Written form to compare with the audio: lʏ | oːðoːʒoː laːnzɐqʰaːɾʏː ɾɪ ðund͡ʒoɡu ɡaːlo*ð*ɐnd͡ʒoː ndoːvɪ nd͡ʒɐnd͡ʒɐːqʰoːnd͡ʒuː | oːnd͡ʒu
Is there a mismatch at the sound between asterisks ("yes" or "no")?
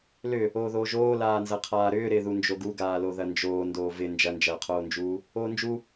no